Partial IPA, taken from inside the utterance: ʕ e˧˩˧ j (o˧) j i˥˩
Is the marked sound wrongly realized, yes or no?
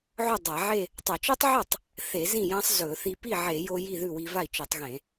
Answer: no